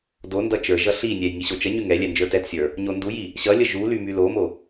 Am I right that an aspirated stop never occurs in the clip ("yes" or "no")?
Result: yes